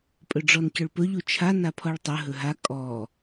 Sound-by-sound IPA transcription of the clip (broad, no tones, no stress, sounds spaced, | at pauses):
pʼ ɵ ɖ͡ʐ ɔ n c ɵ ɭ p ɵ ʎ u t͡ʃʰ a n a pʰ ɔ ɭ tˤ ɵ ɦ ɵ ɦ a kʼ ɔ